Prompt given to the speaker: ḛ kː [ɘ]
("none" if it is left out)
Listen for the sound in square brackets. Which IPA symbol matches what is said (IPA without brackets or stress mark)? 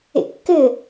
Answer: ɘ